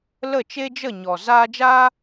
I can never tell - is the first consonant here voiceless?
no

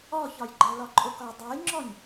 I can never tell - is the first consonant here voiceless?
yes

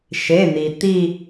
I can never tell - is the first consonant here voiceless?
yes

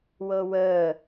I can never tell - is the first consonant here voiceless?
no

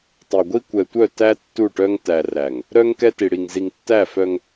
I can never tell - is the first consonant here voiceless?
yes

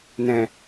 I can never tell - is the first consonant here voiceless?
no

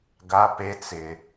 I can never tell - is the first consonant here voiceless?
no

